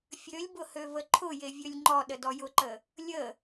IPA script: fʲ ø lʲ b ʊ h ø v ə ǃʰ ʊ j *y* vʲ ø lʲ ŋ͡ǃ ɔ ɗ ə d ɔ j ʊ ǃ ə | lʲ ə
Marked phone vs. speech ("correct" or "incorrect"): incorrect